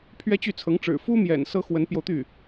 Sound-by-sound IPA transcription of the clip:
pʰɥɛ˥t͡ɕy˥˩t͡sʰɤ˧˥ŋʈ͡ʂɻ̩˨˩ fu˥mjɛ̰˨˩n sɤ˥xwə˧˥npjo˧ʊ̯t̪y˥˩

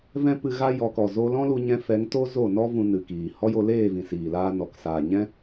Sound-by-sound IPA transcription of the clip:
vɛ̃˦pɨ˧ɣa˦ jɔ˨˦kɔ˨ zo˧lɔ̃˦lu˧ɲɛ̃˧ fɛ˨˦ŋto˦ zo˦˨nɔ˦ vũ˧nɨ˨ kiː˨ hɔ˦jo˧leː˦˨vĩ˨ siː˨laː˧ nɔ˨ksaː˨ɲɛ̃˦

